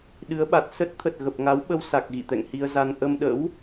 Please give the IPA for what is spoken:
ɗ ɨ˨˦ ə̯ ɓ a˨˩ t̚ s ə˦˥ t̚ t̪ʰ ə˨˩ t̚ ɣ ə˨˩ p̚ ŋ a˨˦ w ɓ ə˧ w s a˨˩ k̚ ɣ ḭ˧˨ t̪ ɛ̰˧˨ ŋ h i˧ ə̯ z a˧ n ʔ ə˧ m ɗ ə̰˧˥ w

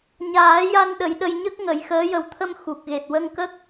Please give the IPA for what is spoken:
ɲ aː˨˩˦ j a˧ n ɗ ə˨˩˦ j ɗ ə˧ j ɲ ə˦˥ k̚ ŋ ə˨˩˦ j x əː˧˥ j ə˨˩ w t̪ʰ ə˧ m x u˨˩ k̚ ɣ e˨˩ t̚ w ə˧ ŋ k ə˦˥ k̚

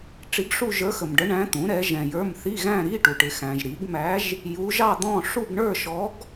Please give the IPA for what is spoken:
ʈ͡ʂ i˧˥ ɡ ʂ u˥˧ ʒ ə˞˧˥ x ə˨ m ɖ ə˧˥ ɳ æ̃˧˥ t̪ ũ˩˥ ɾ ɛ˩˥ ʒ ɛ̃˨ j ə˞˧˥˧ m θ i˧˥˧ ɣ æ̃˥˧ ɾ i˧˥˧ ʈ u˨ ʈ ɪ˩˥ x æ̃˨ ʒ ɾ i˩˥ ɡ m æ˧˥ ʒ | j u˧˥ ʒ ɑ˥˧ d̪ ɔ̃˥˧ ʂ u˥˧ ɡ ɳ ə˞˥˧ ʃ ɔ˧˥ ɡ

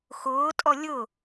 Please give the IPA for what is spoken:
x ʊː tʼ ɔ lʲ ʊ

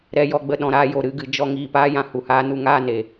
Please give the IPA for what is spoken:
ɾ ɛ˧ j ɔ˧ ɡ͡b ə˧ ɗ ɔ̃˨ ɾ aː˧ j o˨ ɾ ɨ˦˨ ɡ ɨ˨ d͡ʒ ɔ˧ ŋ iː˨ p aː˦ j ã˧ h u˨ h aː˦ n u˦ ŋ aː˦˨ n e˨

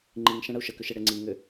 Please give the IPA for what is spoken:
ŋ͡ǃ i ŋ ʃ ɛ̃ ɽ ə u̯ ʃ ə k ʏ ʃ e ɽ e ŋ͡ǀ i ŋ ʏ

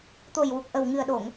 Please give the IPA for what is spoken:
t̪ o˨˩ j w u˨˩ k̚ ʔ ə˨˩ w ŋ ɨ˨˩ ə̯ ɗ o˨˩˨ ŋ

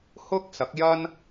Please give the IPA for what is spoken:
h ʊ˥ k̚ s ɐ˨˥ k̚ j ɐ˥ n

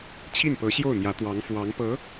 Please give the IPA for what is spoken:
t͡ɕʰ i˥˩ n p ɤ˧˥ ɕ j o˥˩ ʊ̯ n̪ j ä˧˥ t̪ w ɑ˧˥ ŋ f w ɑ˧˥ ŋ p ɤ˧˥

